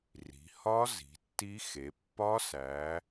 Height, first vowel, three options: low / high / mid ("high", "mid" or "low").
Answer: high